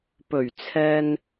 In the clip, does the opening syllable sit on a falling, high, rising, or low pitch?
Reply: low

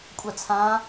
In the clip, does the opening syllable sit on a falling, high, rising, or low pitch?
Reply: falling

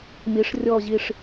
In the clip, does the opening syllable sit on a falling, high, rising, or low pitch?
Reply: rising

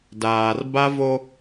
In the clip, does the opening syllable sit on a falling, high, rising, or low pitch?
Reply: low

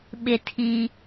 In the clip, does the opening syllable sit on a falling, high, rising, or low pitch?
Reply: high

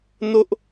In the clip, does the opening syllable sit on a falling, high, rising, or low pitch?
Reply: high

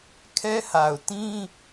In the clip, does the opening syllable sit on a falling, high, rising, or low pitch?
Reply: high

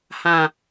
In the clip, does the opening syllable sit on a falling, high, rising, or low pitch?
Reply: low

